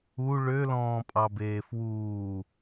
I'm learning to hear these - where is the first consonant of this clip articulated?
retroflex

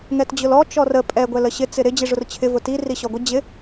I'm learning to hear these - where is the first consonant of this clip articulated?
velum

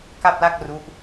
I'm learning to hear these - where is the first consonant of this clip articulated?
velum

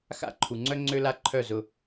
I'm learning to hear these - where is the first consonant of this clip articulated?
velum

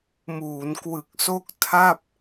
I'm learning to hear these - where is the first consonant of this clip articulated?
lips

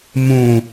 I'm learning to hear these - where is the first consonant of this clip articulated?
lips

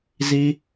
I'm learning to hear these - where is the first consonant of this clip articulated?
tongue tip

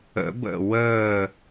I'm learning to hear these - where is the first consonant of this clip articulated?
lips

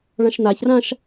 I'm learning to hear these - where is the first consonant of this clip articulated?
retroflex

